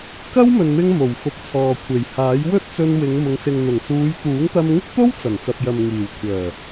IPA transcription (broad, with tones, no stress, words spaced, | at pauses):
kɐ˥wmɵ˨nmɪ˧ŋ mo˨˩wfʊ˨˥k̚t͡sʰɔː˨ kʷʰe˨˩jhaː˨˥j wɵ˥t̚t͡sɵ˧nwɪ˨˧ŋmʊ˨˧ŋ sɪ˨ŋn̪ʊ˨˩ŋsuː˨˧j t̪uː˨˥ŋt̪ɐ˧mŋɪ˥k̚t̪o˥w t͡sɐ˨˩nt͡sɐ˨p̚jɐ˨m ŋiː˨˩wkʷʰœː˨˩